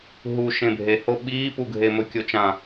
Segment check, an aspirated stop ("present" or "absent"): absent